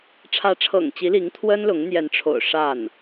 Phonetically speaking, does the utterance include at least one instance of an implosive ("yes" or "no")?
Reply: no